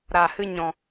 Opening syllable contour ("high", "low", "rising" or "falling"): low